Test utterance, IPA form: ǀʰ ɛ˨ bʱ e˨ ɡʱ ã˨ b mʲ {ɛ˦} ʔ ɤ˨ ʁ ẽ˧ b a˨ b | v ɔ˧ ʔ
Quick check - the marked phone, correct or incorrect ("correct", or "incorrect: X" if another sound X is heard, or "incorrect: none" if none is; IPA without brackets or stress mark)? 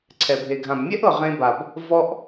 correct